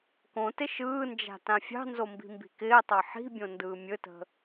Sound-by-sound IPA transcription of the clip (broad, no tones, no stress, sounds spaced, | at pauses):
k õ t ɪ ʃ ɯː n d͡ʒ a̤ t ã fʲ ɑ̤ n z o m b i̤ m b i̤ k ɪː tˤ ɑ ħ i̤ bʲ õ n d ɯː mʲ ɵ t ə̤